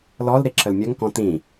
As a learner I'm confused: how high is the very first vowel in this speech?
mid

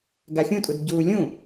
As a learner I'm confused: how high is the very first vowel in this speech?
low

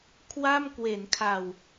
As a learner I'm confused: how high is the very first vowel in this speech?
low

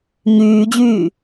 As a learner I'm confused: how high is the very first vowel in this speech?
high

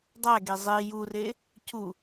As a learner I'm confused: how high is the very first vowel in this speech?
low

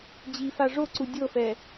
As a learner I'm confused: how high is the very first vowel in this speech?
high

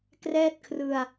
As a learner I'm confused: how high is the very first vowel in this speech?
mid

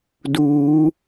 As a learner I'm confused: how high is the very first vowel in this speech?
high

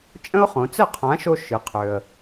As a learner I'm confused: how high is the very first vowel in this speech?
mid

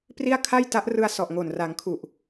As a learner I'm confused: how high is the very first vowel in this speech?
high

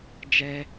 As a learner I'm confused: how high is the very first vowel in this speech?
mid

